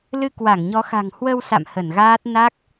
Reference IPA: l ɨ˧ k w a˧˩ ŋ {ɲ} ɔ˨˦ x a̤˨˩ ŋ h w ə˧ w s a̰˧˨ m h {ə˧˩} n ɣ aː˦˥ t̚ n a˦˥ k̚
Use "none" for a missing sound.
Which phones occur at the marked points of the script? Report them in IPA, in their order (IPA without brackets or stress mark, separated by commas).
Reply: ɲ, ə˧˩